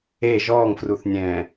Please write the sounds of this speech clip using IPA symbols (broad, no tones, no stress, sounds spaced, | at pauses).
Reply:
e ʒ ɔː ŋ f r u θ nʲ ɛ̃ː